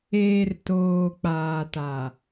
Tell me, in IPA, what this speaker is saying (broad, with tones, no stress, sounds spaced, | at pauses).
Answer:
eː˨ r t oː˨ k͡p aː˨ t a˨